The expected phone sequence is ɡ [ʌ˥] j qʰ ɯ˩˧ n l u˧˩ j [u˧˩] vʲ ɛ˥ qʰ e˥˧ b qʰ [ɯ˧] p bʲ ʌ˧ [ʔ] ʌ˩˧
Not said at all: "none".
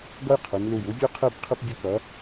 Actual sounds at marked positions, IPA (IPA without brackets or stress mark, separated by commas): ʌ˥, u˥, ɯ˧, k